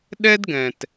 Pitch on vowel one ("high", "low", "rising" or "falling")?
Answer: high